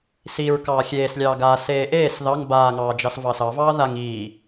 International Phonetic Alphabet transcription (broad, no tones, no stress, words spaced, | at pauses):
siɹ kɑːxʲeːslʲɑː ɡaːseː ʔeːs ðɑŋ baːŋɑː d͡ʒɑsvɑsɑvɑː ðaŋ iː